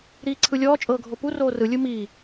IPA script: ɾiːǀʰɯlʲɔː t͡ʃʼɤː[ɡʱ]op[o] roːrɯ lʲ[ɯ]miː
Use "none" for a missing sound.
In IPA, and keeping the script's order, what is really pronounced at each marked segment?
ɡʱ, u, ɯ

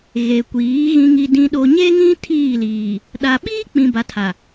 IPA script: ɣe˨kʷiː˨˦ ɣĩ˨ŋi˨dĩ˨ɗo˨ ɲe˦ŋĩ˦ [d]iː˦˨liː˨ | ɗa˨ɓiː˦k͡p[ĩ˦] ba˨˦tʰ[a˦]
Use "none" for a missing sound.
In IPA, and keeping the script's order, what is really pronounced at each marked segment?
tʰ, ĩ˨, a˨

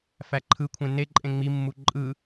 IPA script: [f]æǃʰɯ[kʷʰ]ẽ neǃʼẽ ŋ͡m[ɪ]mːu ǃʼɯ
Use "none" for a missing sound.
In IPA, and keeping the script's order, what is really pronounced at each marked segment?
f, kʷʰ, i

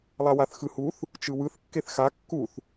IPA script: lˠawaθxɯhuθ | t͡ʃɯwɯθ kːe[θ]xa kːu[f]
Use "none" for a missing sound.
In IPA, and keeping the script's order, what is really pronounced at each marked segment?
θ, θ

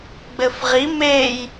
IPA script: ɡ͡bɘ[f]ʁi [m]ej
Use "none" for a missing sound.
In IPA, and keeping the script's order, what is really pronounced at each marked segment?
f, m

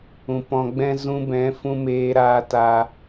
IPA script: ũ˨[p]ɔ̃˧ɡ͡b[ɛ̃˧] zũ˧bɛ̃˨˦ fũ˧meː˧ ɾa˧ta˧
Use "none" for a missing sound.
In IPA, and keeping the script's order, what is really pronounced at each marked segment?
p, ɛ̃˦

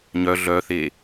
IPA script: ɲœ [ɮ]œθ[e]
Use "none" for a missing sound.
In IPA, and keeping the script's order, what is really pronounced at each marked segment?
ɮ, e

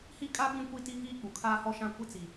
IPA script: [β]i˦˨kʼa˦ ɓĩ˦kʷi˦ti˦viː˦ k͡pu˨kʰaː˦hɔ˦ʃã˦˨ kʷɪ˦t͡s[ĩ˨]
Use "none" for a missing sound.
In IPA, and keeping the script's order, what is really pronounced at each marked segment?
h, i˨

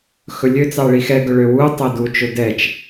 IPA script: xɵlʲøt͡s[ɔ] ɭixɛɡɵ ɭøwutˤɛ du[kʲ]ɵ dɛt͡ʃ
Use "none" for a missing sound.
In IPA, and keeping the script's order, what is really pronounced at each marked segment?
ɑ, t͡ʃ

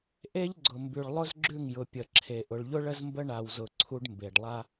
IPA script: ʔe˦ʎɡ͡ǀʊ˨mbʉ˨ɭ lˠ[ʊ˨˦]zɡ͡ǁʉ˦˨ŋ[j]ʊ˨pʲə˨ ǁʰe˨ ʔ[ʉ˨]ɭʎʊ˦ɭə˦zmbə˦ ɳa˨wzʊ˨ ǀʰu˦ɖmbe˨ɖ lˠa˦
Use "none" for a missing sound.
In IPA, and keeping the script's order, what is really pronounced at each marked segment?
ʊ˦, j, ʊ˨

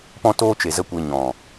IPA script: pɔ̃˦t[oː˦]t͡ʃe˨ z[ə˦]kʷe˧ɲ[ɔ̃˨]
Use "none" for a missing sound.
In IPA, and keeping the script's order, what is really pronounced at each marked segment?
oː˦, ə˦, ɔ̃˨

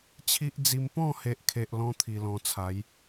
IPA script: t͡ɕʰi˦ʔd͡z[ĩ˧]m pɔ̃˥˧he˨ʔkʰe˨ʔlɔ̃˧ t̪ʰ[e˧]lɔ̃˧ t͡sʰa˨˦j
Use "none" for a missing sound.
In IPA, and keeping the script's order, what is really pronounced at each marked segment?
i˧, i˧

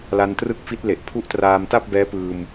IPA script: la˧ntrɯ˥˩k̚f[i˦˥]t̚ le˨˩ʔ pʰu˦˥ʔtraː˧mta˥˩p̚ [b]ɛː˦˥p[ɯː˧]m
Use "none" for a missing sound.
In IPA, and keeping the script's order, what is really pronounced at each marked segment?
i˦˥, b, ɯː˧

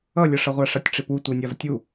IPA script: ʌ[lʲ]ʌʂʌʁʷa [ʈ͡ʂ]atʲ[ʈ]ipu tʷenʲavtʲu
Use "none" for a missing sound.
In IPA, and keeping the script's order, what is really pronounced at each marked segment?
lʲ, ʂ, ʈ͡ʂ

